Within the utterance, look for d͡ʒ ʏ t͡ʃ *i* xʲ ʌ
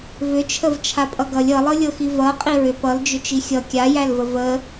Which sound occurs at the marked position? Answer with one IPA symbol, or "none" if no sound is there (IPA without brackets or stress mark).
i